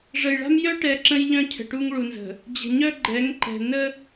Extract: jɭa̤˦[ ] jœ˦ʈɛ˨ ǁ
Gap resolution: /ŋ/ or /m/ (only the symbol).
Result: m